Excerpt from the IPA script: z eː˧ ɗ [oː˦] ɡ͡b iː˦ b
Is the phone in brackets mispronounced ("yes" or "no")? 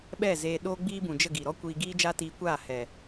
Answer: no